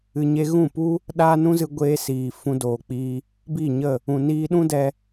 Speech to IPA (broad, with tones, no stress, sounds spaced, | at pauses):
ɨ˨ ɲ e˧ ɣ ũ˦˨ p u˦ | ɗ aː˦ n ũ˦ z ɨ˧ ɡʷ eː˧ s iː˨ f ũ˧ d oː˨ k͡p iː˧ | b i˦˨ ɲ ə˦˨ | ũ˨ n iː˧ ɗ ũ˦ d ɛ˧